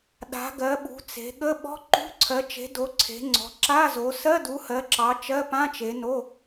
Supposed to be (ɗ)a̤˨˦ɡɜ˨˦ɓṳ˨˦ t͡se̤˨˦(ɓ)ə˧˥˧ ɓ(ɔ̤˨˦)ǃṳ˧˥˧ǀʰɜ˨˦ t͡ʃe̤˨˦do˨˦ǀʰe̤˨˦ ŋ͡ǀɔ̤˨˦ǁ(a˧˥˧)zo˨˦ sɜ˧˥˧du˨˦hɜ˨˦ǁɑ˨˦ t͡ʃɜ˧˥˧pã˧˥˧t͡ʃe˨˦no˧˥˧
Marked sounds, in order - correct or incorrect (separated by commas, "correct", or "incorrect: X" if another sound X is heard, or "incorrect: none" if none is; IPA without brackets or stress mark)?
correct, incorrect: ɠ, incorrect: ɔ̤˧˥˧, correct